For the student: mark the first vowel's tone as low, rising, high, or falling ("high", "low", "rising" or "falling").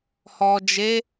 low